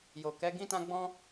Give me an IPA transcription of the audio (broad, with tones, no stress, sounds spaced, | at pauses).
j o˨ k ɛ˨˦ ɡ ĩ˦ t ã˦ ɡ͡b ɔ̃˦